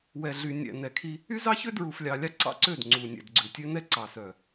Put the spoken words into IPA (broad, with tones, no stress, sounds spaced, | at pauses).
w ɛ˨ ɮ y˨ nʲ ɛ̰˨ n ɛ˨ kʰ i˦ | y˦ z ɑ˦ ç ø˦ d ɹ u˨ f lʲ ɑ˨ lʲ ɑ˦ ǀ ɑ̰˦ ǀ ø˦˨ d ŋ͡ǀ u˨ nʲ ɛ̰˨ d ɡ͡ǀ ʉ˨ tʲ ø˦ n ɛ˦ ǀ ɑ˨ s œ˨